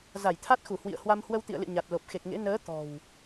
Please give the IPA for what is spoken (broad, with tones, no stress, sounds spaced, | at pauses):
z a˧˩ j t̪ʰ a˦˥ t̚ x u˧˩ h w ḭ˧˨ ə̯ h w a˧ m h w ə˧ w t̪ ḭ˧˨ ə̯ l ɨ̰˧˨ ɲ a˨˩ t̚ l o˨˩ p̚ x e˨˩ k̚ ŋ ḛ˧˥ n əː˨˦ t̪ ɔ̤˨˩ w